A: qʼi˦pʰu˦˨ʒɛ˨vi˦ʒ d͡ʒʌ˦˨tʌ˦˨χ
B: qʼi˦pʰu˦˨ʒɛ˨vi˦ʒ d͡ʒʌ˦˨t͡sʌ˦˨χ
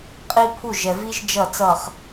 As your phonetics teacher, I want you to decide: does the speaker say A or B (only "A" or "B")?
B